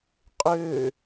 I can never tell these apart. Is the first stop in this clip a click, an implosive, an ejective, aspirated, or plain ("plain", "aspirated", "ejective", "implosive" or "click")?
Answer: ejective